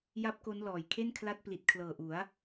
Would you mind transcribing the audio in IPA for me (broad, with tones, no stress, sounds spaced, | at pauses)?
j a˦˥ p̚ k o˦˥ n l ɔː˨˩ j kʰ e˥˩ n kʰ l a˦˥ t̚ p l i˨˩ t̚ kʰ l ɤː˨˩ ʔ u˩˦ a̯